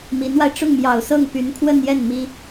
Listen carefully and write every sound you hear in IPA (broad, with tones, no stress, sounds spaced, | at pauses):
m i˧˥ n w a˧ ɪ̯ ʈ͡ʂ ʊ˥˩ ŋ m j ɑ˨˩ ʊ̯ s ɤ˥˩ ŋ p y˧˥ n kʰ w ə˥˧ n j ɛ˥˩ n m i˥